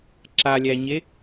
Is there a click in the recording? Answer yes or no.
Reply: yes